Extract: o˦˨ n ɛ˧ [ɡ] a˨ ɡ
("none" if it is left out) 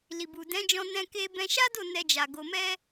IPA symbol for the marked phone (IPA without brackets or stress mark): d͡ʒ